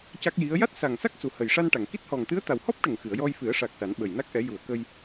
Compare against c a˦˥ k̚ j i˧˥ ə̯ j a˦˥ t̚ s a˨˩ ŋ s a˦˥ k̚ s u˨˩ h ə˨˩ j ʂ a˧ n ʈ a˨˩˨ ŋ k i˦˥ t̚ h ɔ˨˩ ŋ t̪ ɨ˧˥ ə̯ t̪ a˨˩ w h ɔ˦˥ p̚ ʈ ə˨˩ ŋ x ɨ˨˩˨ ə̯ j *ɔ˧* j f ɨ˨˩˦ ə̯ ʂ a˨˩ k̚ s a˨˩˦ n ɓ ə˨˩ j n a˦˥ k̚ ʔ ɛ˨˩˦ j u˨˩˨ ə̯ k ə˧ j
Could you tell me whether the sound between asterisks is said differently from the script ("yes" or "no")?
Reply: no